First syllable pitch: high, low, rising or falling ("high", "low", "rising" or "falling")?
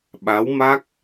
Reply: rising